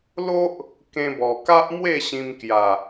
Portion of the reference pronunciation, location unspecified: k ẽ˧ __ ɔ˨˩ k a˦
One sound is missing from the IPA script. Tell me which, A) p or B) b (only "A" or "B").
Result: B